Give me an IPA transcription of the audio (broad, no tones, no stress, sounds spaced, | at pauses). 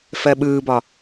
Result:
f ɜ ɓ ɯː b ɒ